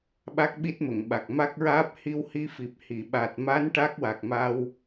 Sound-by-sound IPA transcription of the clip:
ɓ a˦˥ k̚ ɓ i˦˥ t̚ m ə˨˩˨ ŋ ɓ a˨˩ k̚ m a˦˥ k̚ ɹ aː˦˥ p̚ h i˧ w h i˧ f i˨˩ p̚ h i˨˩˨ ɓ aː˨˩ t̚ m a˧˥ n ʈ a˦˥ k̚ w a˨˩ k̚ m a˧ w

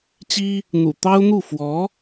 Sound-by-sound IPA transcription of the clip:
t͡ɕ i˥ | n̪ ṵ˨˩ t̪ ɑ˥ ʊ̯ n̪ u˥˩ f w ɔ˧˥

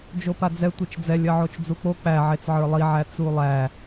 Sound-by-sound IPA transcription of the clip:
d͡ʒ o p a d͡z ɛ tʷ i t͡ʃ d͡z ɛ lʲ ɜ ʕ o t͡ʃ d͡z u k͡p o k͡p æ ʕ e t͡s ʕ ə˞ lˠ i ʕ æ t͡s u lˠ æ

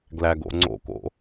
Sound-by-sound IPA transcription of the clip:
ɡ l æ ɡ o̰ ŋ͡ǀ o̰ k o̰

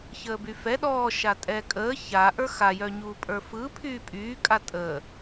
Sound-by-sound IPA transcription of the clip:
ç əː b y f ɛ ɗ ɔ ʃ a tʼ ɛ kʼ əː ç a ʔ ə˞ x a j œ ɲ uː pʼ ə˞ f ɯ pʰ yː pʼ yː kʼ a tʼ əː

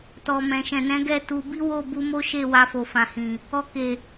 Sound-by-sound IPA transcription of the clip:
t ɔ˨ m ɛ̃˨ ʃ ɛ̃˨ n ɛ̃˨˦ ɡ ɛ˦˨ t u˧ b i˦ w o˦˨ b u˧ m o˦ ʃ e˦˨ w a˧ f o˨ f ã˨ h ĩ˨ | ɔ˧ k e˨

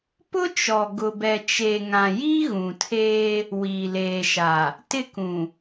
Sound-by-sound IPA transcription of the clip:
p ʊ˦ t͡ʃ ɔ˨ ɡ ʊ˨ b ɛ˨ t͡ʃ e˨ ŋ ã˨ j iː˦ ɣ ũ˨ tʰ eː˦ | w iː˨ l eː˨ ʃ a˨ | t ɪ˦ k ũ˨

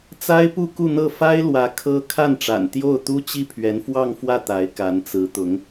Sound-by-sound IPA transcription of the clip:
t͡s a˥ ɪ̯ p u˥˧ k u˥˧ n̪ ɤ˥˩ f a˥ ɪ̯ l w ä˧˥ kʰ ɤ˥ kʰ a˥˩ n ʈ͡ʂ a̰˨˩ n t̪ j o˥˩ ʊ̯ t̪ u˥ t͡ɕ i˥˩ pʰ ɥ ɛ˧˥ n f w ɑ˥˧ ŋ f w ä˥˩ t̪ a˧˥ ɪ̯ k a˧˥ n t͡s ɹ̩˧˥ t̪ ʊ˧˥ ŋ

